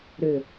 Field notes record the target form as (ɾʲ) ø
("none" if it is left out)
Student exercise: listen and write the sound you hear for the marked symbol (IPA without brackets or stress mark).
ɾ